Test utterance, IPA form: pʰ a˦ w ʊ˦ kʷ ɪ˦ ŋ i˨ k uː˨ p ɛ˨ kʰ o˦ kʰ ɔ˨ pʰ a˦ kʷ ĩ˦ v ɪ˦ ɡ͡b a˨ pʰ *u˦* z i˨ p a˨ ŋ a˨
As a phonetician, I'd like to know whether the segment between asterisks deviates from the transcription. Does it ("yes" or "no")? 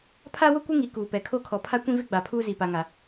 yes